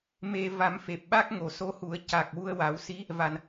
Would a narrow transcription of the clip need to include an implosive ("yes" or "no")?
yes